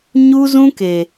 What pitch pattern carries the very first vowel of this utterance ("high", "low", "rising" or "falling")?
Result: high